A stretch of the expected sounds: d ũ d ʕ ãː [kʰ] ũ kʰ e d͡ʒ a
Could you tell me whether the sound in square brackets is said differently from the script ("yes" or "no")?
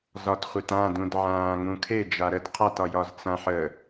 yes